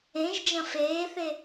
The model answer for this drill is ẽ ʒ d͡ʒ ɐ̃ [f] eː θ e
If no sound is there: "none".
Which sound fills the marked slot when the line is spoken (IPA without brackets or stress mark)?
f